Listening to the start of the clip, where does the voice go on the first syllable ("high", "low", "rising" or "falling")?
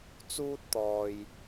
high